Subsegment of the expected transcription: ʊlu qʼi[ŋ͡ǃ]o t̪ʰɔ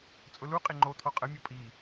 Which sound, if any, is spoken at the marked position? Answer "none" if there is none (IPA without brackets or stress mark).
ŋ͡ǃ